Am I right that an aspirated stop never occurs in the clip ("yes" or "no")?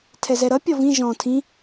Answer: no